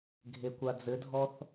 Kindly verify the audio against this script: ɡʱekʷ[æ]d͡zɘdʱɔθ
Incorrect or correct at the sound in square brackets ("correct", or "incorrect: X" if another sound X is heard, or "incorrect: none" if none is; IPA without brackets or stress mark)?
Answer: incorrect: a